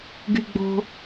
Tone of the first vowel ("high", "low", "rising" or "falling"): low